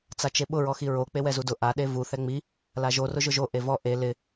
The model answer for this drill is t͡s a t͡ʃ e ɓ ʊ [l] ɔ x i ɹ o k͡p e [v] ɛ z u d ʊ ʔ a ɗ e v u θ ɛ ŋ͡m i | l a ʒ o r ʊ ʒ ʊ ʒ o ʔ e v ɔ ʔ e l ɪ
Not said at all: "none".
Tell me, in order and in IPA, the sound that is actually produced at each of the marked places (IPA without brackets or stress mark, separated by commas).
ɹ, w